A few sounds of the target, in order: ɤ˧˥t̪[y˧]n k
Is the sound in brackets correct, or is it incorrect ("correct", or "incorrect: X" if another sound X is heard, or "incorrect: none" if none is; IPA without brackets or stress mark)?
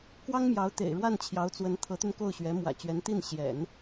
correct